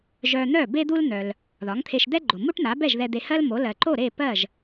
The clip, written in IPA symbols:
ʒœ˧n̪œ˥˩ be˥d̪u˥ln̪œ˩l | ðɒ˩˥ŋt̪ʰe˧ʃd̪ɛ˥ɡ͡ǃo˩ mu˥ʈn̪a˩˥bɛ˥˩ʒ ðɛ˧d̪e˧hɜ˥lmo˩˥ lɜ˩ǃo˥˩ɾe˥˩ pɜ˥˩ʒ

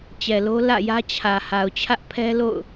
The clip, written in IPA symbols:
t͡ɕɛ˨lo˦ lä̰˦˨jä˦t͡ɕʰä˨ ha˨ʊ̯t͡ɕʰä˦ʔpʰɛ˦ lo̰˦˨ʊ̯

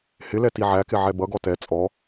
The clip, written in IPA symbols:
hɪlɛ tiʕækɪ ʕɛbʌɡɔ tɛ t͡sʼɔ

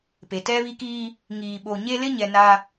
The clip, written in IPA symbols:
pe˨tɛ˦βi˦kiː˦ | ŋiː˨ɓo˨ ɲe˦ lɪ˦ɲɛ˨ na˦

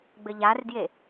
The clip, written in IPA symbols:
ɡ͡bɘʎardje

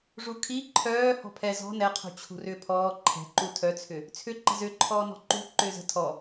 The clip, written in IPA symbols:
ʐukʰi ǃʰœː hɔ̤pʰɛ zɔ̤ nɛqʰṳ t͡ɕʰṳrʏːpʰɔː ǃʰɛ̤ǃu tʰœt͡sʰʏ | t͡sʰʏ ǃə̤zʏːǃʰɔː nɔ̤ǃṳ ǃʏːzə̤ tʰɔ

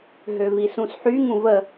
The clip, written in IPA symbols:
ɦøvisũsħy ŋũvə

